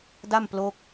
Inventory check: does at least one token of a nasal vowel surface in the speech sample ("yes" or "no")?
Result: no